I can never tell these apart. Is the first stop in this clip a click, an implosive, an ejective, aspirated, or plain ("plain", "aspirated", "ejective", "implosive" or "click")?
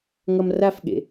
implosive